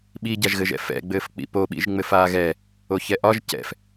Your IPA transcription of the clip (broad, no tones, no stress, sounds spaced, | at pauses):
ɓ i ɟ a ʒ ɣ ɘ ʒ ɛ̰ f ɛ̰ ɡ͡b ɘː f k͡p ḭ p o ɓ ḭ ʒ ŋ͡m ɘ f aː ɣ ɛ | o ç ɛ ʔ ɒ ʒ c ɛ̰ f